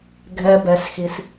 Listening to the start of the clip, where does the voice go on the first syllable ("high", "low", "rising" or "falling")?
high